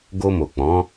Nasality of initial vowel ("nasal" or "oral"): oral